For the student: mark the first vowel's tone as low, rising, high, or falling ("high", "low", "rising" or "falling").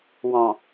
low